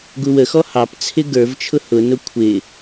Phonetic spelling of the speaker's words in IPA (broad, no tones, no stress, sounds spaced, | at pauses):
ɡ u w ə x ɔ h ɑ p t͡sʰ ɪ ɡ ə˞ v t͡ʃʰ ʊ h ʊ n ʊ kʷʰ ɪ